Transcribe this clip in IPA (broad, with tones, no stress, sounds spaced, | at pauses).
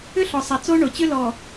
ʏ˦ ɬ ɔ˨ sˤ a˨ t͡s o˦ ɳ o˨ t͡ɕ ʏ˦ l ɔ˨